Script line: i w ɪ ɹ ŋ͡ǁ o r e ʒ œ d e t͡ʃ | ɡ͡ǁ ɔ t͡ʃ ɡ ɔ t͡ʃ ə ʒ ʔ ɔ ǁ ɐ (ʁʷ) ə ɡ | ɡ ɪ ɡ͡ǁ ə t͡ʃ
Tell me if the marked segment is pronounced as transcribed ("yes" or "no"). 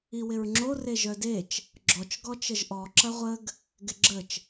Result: yes